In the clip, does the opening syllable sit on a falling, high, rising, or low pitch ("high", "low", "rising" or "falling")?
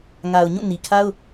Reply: low